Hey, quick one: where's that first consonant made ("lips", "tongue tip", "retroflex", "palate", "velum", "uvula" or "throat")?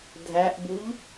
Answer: tongue tip